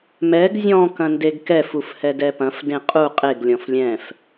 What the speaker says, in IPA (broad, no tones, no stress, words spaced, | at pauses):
mɛɡ zʲɔ̃ kɐ̃ndeɡkɛ fufhɛdɛpɐ̃f dẽqʼu qʼeɡ lʲɔ̃flʲɛ̃f